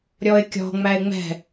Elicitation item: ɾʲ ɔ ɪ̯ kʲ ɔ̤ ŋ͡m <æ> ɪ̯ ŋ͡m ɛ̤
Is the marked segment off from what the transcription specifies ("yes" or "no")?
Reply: no